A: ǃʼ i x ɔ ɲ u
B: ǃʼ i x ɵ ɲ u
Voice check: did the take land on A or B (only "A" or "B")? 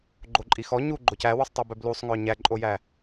A